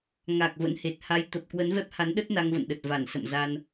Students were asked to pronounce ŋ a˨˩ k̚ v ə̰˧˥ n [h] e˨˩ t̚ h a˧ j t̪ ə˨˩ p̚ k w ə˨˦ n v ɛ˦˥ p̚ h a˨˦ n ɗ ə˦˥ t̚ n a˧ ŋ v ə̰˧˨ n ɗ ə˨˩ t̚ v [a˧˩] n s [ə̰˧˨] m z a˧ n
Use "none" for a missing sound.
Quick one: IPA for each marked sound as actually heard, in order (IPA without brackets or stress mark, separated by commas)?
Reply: h, a˧˩, ə̰˧˨